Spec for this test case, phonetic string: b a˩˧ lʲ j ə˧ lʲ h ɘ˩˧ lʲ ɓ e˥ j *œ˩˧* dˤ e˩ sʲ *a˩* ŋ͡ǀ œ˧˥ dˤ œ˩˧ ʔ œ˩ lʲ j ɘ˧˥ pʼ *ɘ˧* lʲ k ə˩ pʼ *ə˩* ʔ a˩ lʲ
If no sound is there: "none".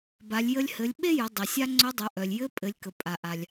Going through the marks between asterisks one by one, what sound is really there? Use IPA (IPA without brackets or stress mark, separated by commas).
ə˩˧, a˧, ɘ˩˧, a˩